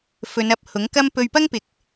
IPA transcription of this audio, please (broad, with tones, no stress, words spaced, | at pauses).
fɵ˨˧nɐ˨p̚ hʊ˨˥ŋkɐ˥m pɵ˧ɥpɐ˥ŋpɪ˨˥k̚